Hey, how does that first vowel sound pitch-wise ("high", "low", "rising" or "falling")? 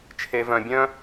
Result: low